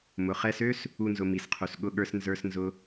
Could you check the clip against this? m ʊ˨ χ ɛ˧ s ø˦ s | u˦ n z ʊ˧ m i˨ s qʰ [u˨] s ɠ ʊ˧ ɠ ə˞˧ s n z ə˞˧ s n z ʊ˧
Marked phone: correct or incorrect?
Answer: correct